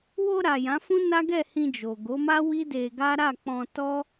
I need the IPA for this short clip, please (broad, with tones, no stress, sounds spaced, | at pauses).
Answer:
w o˧ ɾ a˨ j ã˨˦ f ũ˦ n a˦ ɡ ɛ˦˨ h ĩ˧ d͡ʒ o˨ ɡ o˨˦ m a˦ w i˦ d e˧ ɡ a˦ ɾ a˦˨ k͡p ɔ̃˧ t ɔ˦